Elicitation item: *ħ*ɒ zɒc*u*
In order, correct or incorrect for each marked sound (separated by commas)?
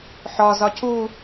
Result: correct, correct